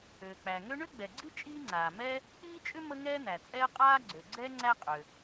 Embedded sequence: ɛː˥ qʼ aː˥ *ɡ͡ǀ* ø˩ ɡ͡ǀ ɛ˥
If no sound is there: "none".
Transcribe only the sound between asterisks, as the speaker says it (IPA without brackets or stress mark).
ɡ͡ǀ